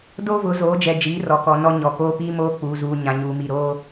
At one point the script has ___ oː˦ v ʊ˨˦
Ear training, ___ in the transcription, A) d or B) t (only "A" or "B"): A